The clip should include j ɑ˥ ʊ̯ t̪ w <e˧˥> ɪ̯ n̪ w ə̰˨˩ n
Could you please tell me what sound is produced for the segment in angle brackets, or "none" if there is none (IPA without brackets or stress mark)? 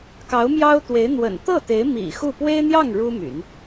e˧˥